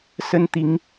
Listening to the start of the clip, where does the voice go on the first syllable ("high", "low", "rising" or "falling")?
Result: high